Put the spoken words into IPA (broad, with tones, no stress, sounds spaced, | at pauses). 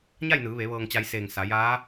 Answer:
ɲ a˥˨ j n ɯː˩˧ ʋ e˩˧ ʋ ɤː˧ ŋ t͡ɕ a˧ j s eː˧˩ ŋ s a˩˧ j aː˧˥